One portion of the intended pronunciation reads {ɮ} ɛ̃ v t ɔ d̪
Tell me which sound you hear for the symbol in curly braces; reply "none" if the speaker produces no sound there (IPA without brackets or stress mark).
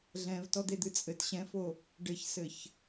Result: ɮ